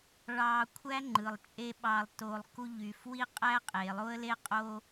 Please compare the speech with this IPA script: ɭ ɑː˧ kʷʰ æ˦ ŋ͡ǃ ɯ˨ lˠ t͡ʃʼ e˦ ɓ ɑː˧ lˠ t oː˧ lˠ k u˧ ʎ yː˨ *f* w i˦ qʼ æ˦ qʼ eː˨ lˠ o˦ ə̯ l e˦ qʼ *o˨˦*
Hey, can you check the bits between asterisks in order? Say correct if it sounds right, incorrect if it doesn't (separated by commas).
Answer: correct, incorrect